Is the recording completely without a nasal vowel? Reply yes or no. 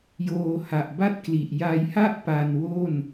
yes